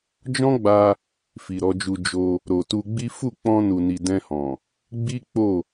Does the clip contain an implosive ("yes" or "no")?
no